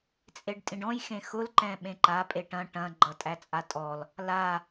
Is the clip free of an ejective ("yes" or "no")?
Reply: no